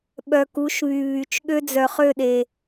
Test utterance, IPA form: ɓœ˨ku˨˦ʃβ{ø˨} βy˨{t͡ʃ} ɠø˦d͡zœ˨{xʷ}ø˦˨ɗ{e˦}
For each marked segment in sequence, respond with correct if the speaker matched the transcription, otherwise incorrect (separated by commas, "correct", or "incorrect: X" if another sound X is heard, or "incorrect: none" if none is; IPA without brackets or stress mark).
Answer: incorrect: y˨, correct, incorrect: χ, incorrect: e˨